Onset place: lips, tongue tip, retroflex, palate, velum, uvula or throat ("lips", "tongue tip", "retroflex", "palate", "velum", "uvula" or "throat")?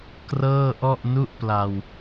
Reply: velum